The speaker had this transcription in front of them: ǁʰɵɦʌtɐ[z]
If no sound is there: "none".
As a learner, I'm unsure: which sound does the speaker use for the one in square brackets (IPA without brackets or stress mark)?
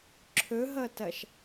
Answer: ʃ